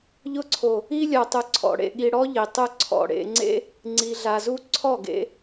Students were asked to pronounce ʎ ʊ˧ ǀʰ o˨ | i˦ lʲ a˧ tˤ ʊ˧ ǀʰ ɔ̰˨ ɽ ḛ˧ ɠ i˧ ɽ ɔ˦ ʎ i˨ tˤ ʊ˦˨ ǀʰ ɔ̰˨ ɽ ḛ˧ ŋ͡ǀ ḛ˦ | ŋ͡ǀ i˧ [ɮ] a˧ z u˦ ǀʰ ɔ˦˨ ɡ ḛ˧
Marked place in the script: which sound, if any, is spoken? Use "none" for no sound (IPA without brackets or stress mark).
ɮ